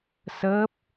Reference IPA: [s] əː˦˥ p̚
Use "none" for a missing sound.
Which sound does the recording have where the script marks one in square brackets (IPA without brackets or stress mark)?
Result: s